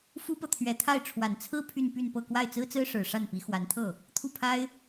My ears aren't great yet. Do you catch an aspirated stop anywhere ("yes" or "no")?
yes